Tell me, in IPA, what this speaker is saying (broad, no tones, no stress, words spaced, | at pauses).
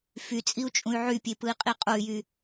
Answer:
fyt͡sʼiu̯t͡ʃʼũy̯ ʕypʲepɯi̯qʼi qʼoy̯jy